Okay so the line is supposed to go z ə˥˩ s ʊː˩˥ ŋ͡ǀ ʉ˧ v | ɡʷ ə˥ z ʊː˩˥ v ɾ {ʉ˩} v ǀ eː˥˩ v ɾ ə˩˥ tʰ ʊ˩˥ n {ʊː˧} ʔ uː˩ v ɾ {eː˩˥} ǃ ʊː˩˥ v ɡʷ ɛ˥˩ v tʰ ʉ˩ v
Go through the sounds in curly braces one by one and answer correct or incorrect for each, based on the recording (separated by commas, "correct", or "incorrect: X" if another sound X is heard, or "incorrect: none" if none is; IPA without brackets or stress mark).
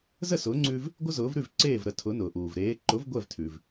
incorrect: ʉ˥˩, incorrect: ʊː˩, correct